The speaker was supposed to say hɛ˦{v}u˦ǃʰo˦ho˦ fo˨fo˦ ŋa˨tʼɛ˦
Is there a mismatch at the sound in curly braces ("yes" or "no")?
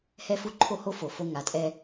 yes